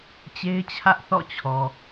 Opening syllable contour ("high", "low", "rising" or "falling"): high